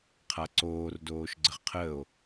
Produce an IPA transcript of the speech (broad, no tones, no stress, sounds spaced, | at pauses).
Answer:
qʰ a ǀ oː r d oː ʃ ɡ͡ǀ ə ʁ qʰ əː o̯